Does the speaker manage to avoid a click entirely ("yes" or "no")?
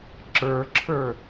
no